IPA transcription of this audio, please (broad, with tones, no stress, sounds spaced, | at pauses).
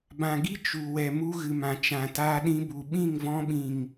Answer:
b ã˨ ɡ i˦ t͡ʃ u˨ w ɛ˨ m u˧ ɣ ɨ˨ m ã˨ t͡ʃ ã˨ t aː˧ ɗ ĩ˧ b u˨ ɓ ĩ˦˨ ŋ v ɔ̃˧ ɓ ĩ˨ ŋ